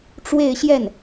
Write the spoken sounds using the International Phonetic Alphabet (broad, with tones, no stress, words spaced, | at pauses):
ʈ͡ʂwe˥˧ɪ̯ɕjɛ˥˩n